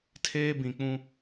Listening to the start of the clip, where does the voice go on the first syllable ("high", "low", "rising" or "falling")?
high